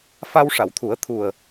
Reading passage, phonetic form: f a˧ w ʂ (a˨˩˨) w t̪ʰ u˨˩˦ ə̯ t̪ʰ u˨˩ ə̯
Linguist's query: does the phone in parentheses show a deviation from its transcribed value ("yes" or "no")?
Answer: no